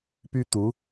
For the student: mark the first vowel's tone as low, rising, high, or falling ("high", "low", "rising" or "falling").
high